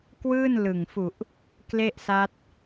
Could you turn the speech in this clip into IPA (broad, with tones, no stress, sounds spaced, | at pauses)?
k w ɯː˥˩ n l ɯ˨˩ ŋ f u˨˩ ʔ | k l e˥˩ ʔ s a˦˥ t̚